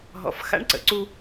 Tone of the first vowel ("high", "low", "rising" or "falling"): low